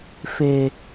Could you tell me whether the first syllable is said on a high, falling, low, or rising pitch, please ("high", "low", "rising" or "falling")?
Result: high